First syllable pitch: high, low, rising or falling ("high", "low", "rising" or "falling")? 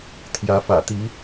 rising